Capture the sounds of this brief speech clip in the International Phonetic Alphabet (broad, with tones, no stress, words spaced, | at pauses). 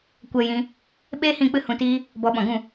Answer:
kʷɛ˧ jĩ˧ | ɓeː˦ hĩ˦˨k͡pɨ˦ hũ˧tiː˦ | bɔ˨˦ɓɔ̃˨ɡũ˦˨